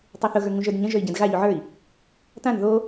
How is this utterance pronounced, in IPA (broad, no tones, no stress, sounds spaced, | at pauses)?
tˤ ʉ θ ʊ ɣ ə˞ ŋ ũ ʒ ə˞ d ɲ ə̃ ʒ ə˞ i̯ ɟ ɛ̃ d ɣ a ʎ u ʕ ə˞ i̯ | t ã n ð o